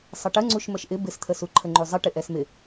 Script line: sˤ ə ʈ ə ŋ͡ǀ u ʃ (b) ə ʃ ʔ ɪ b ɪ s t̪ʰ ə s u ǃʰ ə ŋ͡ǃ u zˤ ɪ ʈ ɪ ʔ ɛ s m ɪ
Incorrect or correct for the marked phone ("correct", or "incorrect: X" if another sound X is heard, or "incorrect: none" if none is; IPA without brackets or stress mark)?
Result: incorrect: m